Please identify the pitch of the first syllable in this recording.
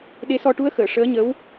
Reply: rising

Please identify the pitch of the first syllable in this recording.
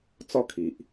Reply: falling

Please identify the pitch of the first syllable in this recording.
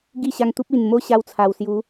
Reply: falling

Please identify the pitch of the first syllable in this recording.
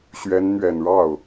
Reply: rising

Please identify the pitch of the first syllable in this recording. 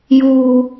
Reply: low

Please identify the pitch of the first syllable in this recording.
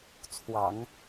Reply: low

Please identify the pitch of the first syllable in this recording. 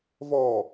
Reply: low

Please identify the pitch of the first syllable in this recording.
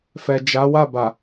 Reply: low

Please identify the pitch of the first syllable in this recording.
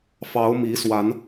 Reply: rising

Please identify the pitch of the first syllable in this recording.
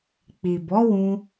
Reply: low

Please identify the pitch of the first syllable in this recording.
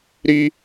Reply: high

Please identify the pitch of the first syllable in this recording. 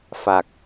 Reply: low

